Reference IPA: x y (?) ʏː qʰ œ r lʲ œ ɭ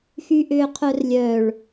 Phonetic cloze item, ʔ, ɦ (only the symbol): ʔ